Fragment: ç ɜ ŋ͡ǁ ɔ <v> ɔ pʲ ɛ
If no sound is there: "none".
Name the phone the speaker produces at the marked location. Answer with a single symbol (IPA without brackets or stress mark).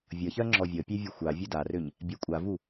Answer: vʲ